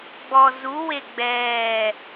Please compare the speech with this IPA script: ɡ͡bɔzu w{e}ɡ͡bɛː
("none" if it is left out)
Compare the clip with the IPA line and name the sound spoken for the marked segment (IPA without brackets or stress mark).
e